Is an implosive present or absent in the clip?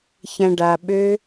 present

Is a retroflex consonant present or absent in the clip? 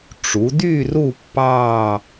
present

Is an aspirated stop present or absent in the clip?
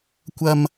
absent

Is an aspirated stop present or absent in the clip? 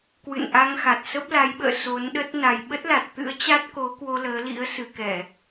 absent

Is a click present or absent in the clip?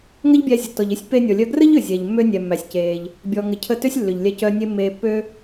absent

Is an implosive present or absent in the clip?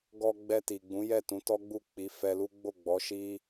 absent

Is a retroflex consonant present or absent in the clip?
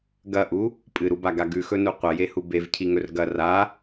absent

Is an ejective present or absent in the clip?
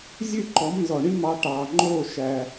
absent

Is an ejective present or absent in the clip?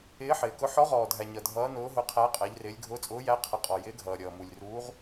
present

